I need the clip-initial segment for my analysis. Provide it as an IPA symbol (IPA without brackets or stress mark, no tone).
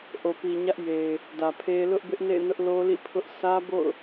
ʔ